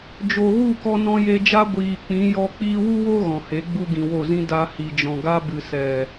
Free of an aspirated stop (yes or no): yes